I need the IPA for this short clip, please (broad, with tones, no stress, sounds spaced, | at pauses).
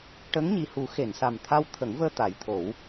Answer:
ʈ ə˧˥ ŋ ɲ i˨˩ h u˨˩˦ x e˨˩˨ n s a˨˩ m t̪ʰ a˧ w t̪ʰ ə˨˩˦ ŋ v əː˧ t̪ a˨˩˦ j t̪ʰ o˨˩˦ w